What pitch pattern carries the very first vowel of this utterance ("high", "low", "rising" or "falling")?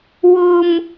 high